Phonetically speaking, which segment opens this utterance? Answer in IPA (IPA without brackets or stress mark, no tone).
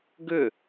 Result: ɡ